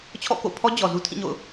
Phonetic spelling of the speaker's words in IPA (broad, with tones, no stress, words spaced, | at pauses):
t͡ɕʰɔ̰˦˨ko̰˦˨pʰɔ˦ d͡ʑɔ˨zu˦tʰĩ˦˨ɲo̰˦˨ʊ̯